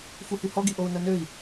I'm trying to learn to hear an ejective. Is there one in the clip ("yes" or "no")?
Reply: no